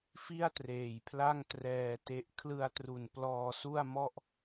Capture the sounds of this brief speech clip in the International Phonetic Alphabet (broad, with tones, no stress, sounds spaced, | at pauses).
f i˥˩ a̯ t r eː˨˩ j pʰ l a˥˩ ŋ t r ɛː˧ t e˦˥ ʔ kʰ l ɯ˧ a̯ t r u˨˩ n p l ɔː˧ s u˥˩ a̯ m ɔ˥˩ ʔ